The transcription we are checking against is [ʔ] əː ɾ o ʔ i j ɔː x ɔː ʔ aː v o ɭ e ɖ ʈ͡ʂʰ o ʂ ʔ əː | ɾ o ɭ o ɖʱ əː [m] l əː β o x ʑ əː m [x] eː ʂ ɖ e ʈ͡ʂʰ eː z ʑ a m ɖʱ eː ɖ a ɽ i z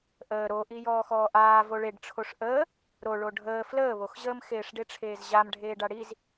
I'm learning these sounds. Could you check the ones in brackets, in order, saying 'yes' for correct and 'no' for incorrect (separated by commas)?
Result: yes, no, yes